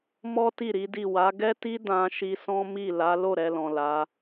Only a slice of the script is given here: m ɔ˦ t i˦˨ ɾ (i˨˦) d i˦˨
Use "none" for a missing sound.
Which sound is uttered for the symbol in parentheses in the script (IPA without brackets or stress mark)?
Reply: i˨˦